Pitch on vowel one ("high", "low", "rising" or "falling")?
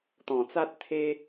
low